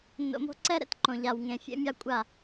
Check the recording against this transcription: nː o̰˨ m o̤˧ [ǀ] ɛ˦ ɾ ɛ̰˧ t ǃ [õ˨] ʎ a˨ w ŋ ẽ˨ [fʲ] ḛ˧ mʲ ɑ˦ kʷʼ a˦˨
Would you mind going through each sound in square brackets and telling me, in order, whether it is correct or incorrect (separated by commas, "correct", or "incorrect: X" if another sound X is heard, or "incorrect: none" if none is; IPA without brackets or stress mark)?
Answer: correct, correct, correct